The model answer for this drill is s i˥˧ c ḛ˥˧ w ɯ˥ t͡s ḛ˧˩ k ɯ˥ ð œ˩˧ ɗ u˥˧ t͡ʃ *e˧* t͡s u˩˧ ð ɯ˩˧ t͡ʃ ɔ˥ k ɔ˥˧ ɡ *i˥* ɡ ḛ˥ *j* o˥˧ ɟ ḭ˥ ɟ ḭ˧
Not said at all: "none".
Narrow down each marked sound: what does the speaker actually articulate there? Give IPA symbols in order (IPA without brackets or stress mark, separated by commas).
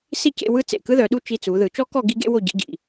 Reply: i˧, i˥, w